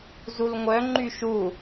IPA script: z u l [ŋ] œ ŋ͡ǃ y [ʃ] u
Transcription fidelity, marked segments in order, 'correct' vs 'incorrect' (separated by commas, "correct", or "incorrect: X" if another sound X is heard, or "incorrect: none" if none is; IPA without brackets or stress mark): incorrect: ŋʷ, correct